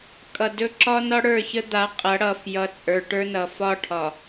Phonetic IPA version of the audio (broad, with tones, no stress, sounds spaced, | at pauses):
kʼ ʌ˨ d ɵ˦ ǁ ɒ˦ n ɒ˦ ɽ ə˞˦˨ ç ə˦ d̪ a˨˦ qʼ ʌ˨˦ ɽ ʌ˨ f j ʌ˨ t͡sʼ ə˞˨ ʈ ə˞˦ n ʌ˨ f ɒ˦ ʈʰ ɒ˨